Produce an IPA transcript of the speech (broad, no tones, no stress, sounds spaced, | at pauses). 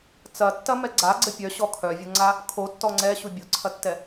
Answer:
t͡s ɐ tː ɐ m ɛ ɡ͡ǀ a ɡ͡ǀ ə pʲ œ ɕ ɔ kʰ œ vʲ o ŋ͡ǀ a | kʰ o tː ɔ ŋ͡ǀ ɛ ɕ u bʲ o ǀʰ ɐ tː ɛ